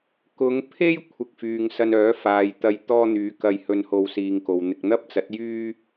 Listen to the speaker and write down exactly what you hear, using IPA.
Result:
k ʊ˨˧ ŋ pʰ e˥ j kʷʰ ɪ˧ k̚ f yː˨ ŋ s ɐ˧ n œː˨˥ f aː˨ j t̪ ɐ˧ j t̪ ɔː˥ n̪ yː˨˥ k ɐ˧ j h ɵ˧ n h o˧ w s iː˨ ŋ k o˨ w n̪ ɪ˧ k̚ n̪ ɐ˥ p̚ t͡s ɐ˨˥ t̚ j yː˥

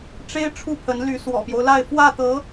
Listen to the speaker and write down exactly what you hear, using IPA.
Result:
ʈ͡ʂ e˥ ɪ̯ ʈ͡ʂʰ u˥˩ pʰ ə˧˥ n l y˧˥ s w ɔ̰˨˩ p j o˦ ʊ̯ l a˥˧ ɪ̯ f w ä˥˩ t̪ ɤ˧˥

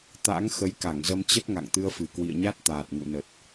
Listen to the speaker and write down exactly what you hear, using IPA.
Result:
t̪ a̰˧˥ ŋ x ə˨˦ j k a˧˩ ŋ z ə˧ m t͡ɕ ə˦˥ t̚ ŋ a̰˧˨ ŋ t̪ ɨ˧ ə̯ f ɨ˨˩ k w ḭ˧˨ ə̯ ɲ a˦˥ t̚ t̪ aː˨˩ t̚ ŋ ṵ˧˨ n ə˨˩ t̚

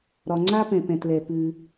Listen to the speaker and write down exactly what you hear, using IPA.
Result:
ɾ ɒ˩ ŋ͡ǀ a˥ p ɛ̃˩ p ɛ̃˩ t l ɛ˩ p ʉ˩

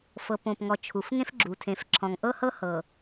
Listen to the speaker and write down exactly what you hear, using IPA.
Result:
f ɤ˨ p õ˨ p ŋ ɔ˨ t͡ʃʰ u˨ f ŋ ẽ˦ f ɡ͡ǁ u˨ tʰ ẽ˨˦ f ǁʰ ɔ̃˨ ŋ ʔ ɤ˦ h ɤ˦ h ɤ˨

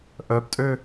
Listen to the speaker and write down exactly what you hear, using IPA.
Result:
ʔ œ p tʼ ø

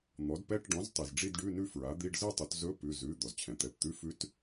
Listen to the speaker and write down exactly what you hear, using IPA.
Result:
n̪ ɔ˩˥ d p ɛ˧˥˧ ʈ ɖ ɔ̃˩˥ z tˤ i˩ z ɖ͡ʐ i˥˧ d ɖ ʉ˧˥˧ n ʉ˥˧ f ɹ a˩˥ d̪ i˧˥˧ ɖ z ɯ˥˧ tˤ ɵ˩˥ t z ɵ˧˥˧ p ʉ˩˧˩ z ʉ˩˧˩ d̪ ɔ˩ z t͡ɕʰ ɛ̃˩ t̪ ɛ˩˧˩ p t̪ ʉ˧˥˧ f ʉ˧˥ t

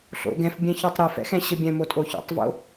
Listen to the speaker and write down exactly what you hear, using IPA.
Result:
ɬ o̰ ɡ ɛ̃ f bʲ ɛ̃ ç ɔ tˤ ɾ ɨ f ɛ̰ x ɛ̃ ɕ ɘ bʲ ɛ̃ m o tʼ o ç o̰ tˤ v o̰

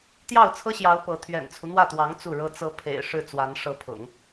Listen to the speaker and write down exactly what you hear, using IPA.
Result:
t̪ j ɑ˥˩ ʊ̯ t͡sʰ ɤ˥ ɕ j ɑ˧˥ ʊ̯ p ɤ˧˥ t̪ʰ ɥ ɛ̰˨˩ n t͡sʰ u˦ n̪ w ä˥˩ t̪ w ɑ˧˥ ŋ t͡s u˥˩ ɻ ɤ˥ t͡s ɤ˧˥ pʰ ḛ˨˩ ɪ̯ ʂ ɻ̩˥˩ t͡s w a˧˥ n ʂ ɤ˧˥ pʰ ʊ̰˨˩˦ ŋ

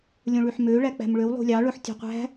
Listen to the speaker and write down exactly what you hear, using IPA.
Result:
lʲ õ ɭ y ħ m ø ɭ æ k͡p æ̤ m ɭ ø w lˠ ṳ lʲ ɑ ɭ ɵ ħ tʲ ɔ̤ qʷ æ̤

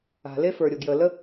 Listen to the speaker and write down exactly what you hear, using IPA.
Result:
a̤˨ l e˦ f ə˞˨ ɾʲ o˨ ɡ j ə˨ l ə˦

